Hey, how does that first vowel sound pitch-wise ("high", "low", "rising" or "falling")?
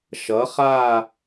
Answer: rising